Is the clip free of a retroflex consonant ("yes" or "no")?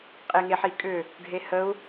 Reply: no